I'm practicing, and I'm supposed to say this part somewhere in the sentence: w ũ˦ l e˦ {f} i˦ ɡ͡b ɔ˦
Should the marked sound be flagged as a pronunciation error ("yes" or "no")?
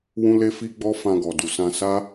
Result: no